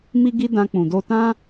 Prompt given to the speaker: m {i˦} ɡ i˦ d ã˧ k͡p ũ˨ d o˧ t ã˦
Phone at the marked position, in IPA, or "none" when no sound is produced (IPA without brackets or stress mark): i˦